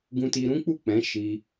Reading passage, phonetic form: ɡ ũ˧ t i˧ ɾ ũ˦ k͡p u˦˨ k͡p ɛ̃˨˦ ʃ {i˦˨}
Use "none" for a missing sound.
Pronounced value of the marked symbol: i˧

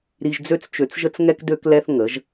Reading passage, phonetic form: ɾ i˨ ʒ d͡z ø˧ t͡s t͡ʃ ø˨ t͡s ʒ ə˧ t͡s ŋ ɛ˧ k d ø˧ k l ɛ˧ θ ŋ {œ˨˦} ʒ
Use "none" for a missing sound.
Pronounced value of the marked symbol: ə˨˦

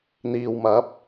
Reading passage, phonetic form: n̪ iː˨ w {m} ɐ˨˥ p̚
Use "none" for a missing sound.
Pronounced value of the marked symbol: m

